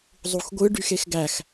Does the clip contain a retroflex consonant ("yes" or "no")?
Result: yes